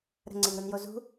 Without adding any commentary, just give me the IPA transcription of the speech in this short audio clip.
ɾ ə̤ ŋ͡ǀ e ŋ ɾ u n j o z ṳ

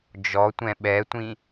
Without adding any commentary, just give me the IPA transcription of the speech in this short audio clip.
d͡ʒ ɔ tʷ ɛ̃ ɓ ɛ tʷ ĩ

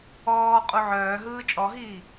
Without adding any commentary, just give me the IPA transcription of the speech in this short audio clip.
ɔː qʼ u ʕ œː ɦ ɯː t͡ʃʼ ɔ ɦ iː

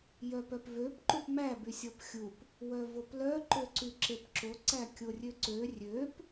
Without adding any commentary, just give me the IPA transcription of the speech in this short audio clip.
j œ p œ p v ø p ǃ u p m æ b y sʲ ɔ p xʲ u p | w œ v o p l œ ǃ ø ǀ y ǁ e p ǁ o ǀ æ kʲ o rʲ ø ǀ ø rʲ ø p

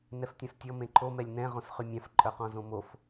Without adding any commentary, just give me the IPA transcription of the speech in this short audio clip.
n ɛ f tʲ õ s tʲ ɔ m ẽ ǃʰ o m ɛ lʲ n ɛ̃ ʁ õ s χ y mʲ ã f ǃʼ œ q ɔ̃ z õ m o f

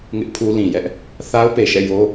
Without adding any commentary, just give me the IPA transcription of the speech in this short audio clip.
ŋ ɪ˦ ʔ pʰ u˦ l ĩ˨ j ɛ˦ ʔ | θ a˦ ʊ̯ p e˨ ʃ ɛ̰˦˨ j o˦

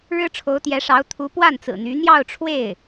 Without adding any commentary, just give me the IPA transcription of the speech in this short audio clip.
ɻ ɻ̩˥ ʈ͡ʂʰ o˧˥ ʊ̯ t̪ j ɛ˧˥ ʂ ɑ˧˥ ʊ̯ t̪ʰ u˧˥ p w a˥˩ n t͡s ɹ̩˨˩ n̪ y˧˥ n̪ j ɑ˥˧ ʊ̯ ʈ͡ʂʰ w e˥˩ ɪ̯

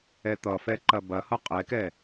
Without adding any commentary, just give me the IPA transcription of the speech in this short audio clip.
ɛ t̪ ʌ f ɛ ǃ ɐ b ɐ h ʌ qʼ ɛ k ɛ

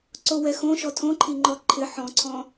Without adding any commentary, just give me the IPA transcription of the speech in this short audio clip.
ǀ o w ɛ x õ ʃ ɔ tʰ õ ǃʰ i ŋ͡ǃ ɔ ǃʰ ɪ ħ ɔ̃ ǀʰ ɔ̃

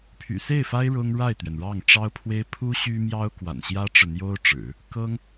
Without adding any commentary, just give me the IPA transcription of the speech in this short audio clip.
pʰ y̰˨˩ s e˥˩ ɪ̯ f a˥ ɪ̯ ɻ ʊ˥ ŋ ɻ a˥˩ ɪ̯ t̪ ɥ ɛ˩ n ɻ ɑ˥˩ ŋ ʈ͡ʂ ɑ˥ ʊ̯ pʰ w e˥ ɪ̯ pʰ u˥ ɕ y˥ m j ɑ˥ ʊ̯ k w a̰˨˩ n ɕ j ä˥ ʈ͡ʂ ɻ̩˨ n̪ j o˥ ʊ̯ ʈ͡ʂ ɻ̩˨˩˦ | k ɤ˥ ŋ

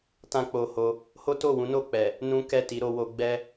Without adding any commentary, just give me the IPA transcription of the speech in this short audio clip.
t ã˦ k͡p o˧ h o˧ | h o˦ t o˦˨ w ũ˨˦ n o˦˨ k͡p ɛ˨ | n ũ˦ k ɛ˦˨ t i˨˦ ɾ o˧ w o˧ ɡ͡b ɛ˦

